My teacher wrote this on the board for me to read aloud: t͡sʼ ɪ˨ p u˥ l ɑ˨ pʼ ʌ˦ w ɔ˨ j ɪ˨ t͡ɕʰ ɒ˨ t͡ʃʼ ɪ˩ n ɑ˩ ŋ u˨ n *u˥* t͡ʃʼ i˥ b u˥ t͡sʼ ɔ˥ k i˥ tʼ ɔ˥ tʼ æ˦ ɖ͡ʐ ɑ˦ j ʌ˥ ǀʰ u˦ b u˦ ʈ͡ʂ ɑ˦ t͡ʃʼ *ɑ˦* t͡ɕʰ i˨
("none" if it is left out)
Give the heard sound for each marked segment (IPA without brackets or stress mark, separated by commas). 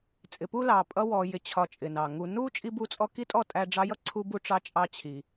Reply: u˥, ɑ˦